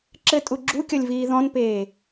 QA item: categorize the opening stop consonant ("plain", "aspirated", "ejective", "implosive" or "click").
click